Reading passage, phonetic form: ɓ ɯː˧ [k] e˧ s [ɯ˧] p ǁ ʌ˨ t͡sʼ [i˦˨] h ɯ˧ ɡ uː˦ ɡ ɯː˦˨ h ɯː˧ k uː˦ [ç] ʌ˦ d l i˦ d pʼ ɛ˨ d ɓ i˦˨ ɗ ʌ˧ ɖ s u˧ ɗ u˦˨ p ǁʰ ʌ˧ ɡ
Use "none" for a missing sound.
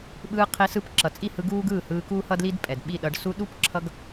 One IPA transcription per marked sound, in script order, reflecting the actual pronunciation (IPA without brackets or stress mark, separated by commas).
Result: qʰ, ɯ˧, i˦˨, h